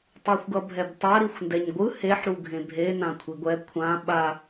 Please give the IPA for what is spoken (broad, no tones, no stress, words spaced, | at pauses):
tˤoxʷɡʌbʱɛbtˤa ɾixʷndɛɲɡʷɯ heħ ɾuɡʱẽbʱe nãkʷʰiɡʷɛ kʷʰã ɓa